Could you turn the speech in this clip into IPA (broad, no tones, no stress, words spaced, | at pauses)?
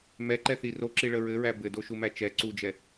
mɛǃɛθi roǁiɭə ɹɘɹæ bɘdoʃumæ t͡ʃɛ ǀud͡ʒɛ